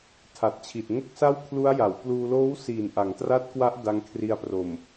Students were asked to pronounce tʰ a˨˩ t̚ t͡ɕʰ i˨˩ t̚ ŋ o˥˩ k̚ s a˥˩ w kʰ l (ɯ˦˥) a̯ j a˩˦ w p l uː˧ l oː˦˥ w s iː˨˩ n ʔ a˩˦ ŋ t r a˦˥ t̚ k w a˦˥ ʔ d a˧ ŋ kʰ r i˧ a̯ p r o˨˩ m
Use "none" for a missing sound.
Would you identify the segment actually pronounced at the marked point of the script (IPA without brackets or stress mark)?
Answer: u˦˥